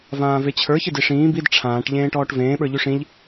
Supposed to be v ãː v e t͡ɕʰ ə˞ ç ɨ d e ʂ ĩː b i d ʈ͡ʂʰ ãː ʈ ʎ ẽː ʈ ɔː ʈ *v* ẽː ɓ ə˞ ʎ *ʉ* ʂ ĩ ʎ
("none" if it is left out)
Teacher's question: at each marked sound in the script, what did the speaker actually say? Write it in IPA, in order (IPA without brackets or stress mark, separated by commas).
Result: v, ʉ